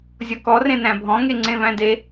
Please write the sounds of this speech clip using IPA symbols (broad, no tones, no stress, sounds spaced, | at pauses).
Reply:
zʲ ɔ k ɔ r ẽ n æ̃ bʱ ɔ̃ ŋ e ŋ͡ǀ ẽ v æ̃ d e